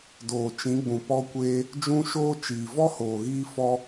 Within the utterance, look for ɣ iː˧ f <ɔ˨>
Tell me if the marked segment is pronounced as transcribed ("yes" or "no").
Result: no